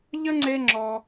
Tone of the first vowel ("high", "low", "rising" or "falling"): high